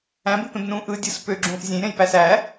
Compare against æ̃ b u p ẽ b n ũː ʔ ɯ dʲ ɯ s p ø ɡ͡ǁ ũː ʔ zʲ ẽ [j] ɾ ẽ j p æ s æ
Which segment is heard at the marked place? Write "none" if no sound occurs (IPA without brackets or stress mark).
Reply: j